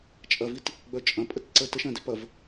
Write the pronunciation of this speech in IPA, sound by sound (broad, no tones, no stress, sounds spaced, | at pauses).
t͡ʃʼ ɐ v i t | ɡ͡b œ t͡ʃʼ ɐ̃ pʼ ə t ǀ ə t ə ʃ ɐ̃ d e p ɐ v